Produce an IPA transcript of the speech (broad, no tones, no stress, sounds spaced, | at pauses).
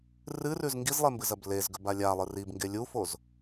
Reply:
r ɨ r ʉ z ŋ ɡ i z lˠ e m b ɨ z ɐ b l e z ɡ ɵ b a lʲ a lˠ ɨ r i b ŋ ɡ e lʲ u f o z